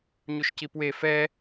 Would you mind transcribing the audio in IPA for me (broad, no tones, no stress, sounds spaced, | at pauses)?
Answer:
ɲ u ʃ c i p w e f ɛ